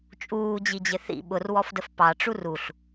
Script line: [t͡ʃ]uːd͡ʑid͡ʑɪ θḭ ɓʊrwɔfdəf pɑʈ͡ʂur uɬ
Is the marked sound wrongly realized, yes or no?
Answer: yes